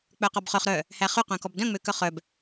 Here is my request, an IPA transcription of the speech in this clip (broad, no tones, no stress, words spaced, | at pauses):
k͡pœqɔbχœχ ɾœ | hæχy qœ̃kɔbdœ̃ ŋ͡møkœχœb